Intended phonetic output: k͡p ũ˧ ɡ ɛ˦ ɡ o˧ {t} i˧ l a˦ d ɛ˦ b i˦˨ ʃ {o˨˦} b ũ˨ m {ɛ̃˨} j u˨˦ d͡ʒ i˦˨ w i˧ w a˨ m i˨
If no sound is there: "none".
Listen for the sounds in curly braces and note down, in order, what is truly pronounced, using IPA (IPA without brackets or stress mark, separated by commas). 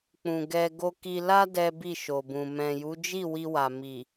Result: k, o˨, ɛ̃˨